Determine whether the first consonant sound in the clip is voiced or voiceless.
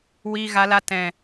voiced